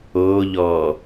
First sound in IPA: oː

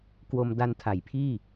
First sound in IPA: k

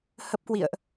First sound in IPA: h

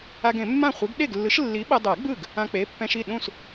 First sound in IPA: a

